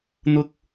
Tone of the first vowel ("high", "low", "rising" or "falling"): low